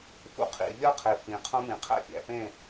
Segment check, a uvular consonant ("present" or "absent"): present